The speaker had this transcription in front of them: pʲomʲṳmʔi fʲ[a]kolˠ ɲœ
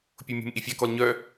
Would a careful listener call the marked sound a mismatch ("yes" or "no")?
no